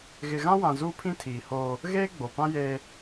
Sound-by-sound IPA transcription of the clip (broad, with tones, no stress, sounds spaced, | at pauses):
ɣ ɪ˨ ɣ ã˦ w ã˨ z uː˦ pʰ ĩ˦ tʰ iː˨ h oː˦ | ɣ eː˦ ɡ͡b o˨ p ã˦ j eː˦